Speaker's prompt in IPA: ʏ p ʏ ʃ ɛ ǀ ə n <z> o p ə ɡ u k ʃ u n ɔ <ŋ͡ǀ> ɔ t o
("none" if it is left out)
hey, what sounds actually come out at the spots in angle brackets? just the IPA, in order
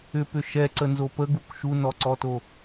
z, ǀ

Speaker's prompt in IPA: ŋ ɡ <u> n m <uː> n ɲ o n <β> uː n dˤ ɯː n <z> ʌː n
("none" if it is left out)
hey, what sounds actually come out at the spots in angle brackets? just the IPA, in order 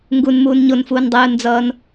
u, uː, f, d͡z

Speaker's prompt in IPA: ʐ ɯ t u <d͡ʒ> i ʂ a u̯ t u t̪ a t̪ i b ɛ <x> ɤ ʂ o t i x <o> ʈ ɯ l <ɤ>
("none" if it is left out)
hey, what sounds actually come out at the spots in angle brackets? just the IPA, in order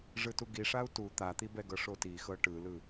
ɡ, ɡ, ɤ, ɯ

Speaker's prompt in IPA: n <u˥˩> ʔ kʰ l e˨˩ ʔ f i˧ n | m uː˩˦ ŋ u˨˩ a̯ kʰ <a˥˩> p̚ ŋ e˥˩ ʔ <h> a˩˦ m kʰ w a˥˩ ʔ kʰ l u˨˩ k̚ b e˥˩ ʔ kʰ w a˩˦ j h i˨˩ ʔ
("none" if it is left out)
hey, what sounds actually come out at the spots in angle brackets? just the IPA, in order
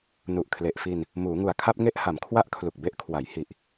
u˨˩, a˥˩, h

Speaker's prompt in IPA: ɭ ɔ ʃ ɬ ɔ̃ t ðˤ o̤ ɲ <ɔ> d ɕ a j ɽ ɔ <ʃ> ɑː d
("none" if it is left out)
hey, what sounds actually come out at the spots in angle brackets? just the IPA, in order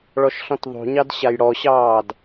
ɑ, ɕ

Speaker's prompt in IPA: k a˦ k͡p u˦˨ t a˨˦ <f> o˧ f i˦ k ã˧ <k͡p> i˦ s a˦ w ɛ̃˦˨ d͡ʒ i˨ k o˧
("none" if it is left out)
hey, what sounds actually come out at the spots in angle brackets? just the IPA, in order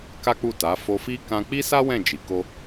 f, k͡p

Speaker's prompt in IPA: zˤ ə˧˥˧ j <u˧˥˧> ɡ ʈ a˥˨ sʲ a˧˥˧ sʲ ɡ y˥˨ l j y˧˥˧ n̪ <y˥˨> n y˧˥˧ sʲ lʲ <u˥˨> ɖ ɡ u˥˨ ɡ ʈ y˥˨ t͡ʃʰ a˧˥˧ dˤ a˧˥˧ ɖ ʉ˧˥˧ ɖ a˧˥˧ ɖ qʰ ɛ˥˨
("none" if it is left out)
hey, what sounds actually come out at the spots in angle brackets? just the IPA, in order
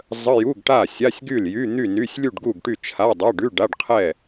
u˧˥˧, y˥˨, u˥˨

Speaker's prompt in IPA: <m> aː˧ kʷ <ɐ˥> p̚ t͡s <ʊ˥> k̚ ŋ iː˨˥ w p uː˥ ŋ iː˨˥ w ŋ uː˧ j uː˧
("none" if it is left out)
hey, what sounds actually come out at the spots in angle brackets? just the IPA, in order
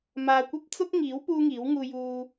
m, ɐ˥, ʊ˥

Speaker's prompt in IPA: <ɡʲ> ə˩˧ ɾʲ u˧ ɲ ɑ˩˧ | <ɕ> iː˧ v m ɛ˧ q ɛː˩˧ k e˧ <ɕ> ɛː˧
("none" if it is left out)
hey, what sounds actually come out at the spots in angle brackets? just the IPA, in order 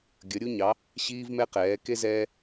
ɡʲ, ɕ, z

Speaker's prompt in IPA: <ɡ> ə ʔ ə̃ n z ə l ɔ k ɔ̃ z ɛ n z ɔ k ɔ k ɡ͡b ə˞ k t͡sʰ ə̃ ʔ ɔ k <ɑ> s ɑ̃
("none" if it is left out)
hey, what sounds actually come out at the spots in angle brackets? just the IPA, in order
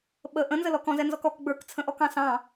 ɓ, ɑ̃

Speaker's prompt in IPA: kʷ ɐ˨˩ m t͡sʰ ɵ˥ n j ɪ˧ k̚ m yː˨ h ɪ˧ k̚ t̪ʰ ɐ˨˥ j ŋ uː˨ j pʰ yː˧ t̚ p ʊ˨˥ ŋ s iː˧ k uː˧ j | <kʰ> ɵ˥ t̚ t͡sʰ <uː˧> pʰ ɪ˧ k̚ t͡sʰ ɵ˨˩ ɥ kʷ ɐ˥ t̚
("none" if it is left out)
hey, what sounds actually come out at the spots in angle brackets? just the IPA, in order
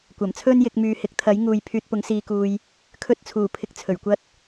kʰ, uː˨˩

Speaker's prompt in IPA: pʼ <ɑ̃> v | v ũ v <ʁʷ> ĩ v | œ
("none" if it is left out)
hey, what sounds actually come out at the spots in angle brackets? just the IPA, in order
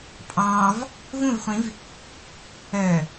ɑ̃, χʷ

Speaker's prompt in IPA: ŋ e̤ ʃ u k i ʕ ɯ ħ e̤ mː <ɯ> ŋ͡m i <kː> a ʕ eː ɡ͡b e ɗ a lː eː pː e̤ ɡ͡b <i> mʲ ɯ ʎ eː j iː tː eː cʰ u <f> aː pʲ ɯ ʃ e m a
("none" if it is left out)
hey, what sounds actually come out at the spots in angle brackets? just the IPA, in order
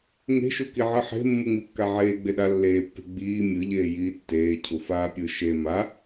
u, kː, iː, f

